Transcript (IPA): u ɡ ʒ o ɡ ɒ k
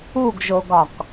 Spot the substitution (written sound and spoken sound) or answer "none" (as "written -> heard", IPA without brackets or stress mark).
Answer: none